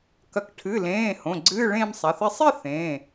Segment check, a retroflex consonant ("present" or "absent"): present